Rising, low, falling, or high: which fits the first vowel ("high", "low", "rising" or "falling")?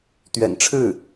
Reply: low